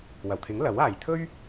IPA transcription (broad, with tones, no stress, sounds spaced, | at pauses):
w ɐ˨˩ w t̪ʰ ɪ˨˥ ŋ l ɐ˨˥ w aː˨ j t̪ʰ ɵ˥ ɥ